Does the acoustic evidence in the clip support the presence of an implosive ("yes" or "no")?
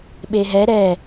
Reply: yes